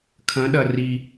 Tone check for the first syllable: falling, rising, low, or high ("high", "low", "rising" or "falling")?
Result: rising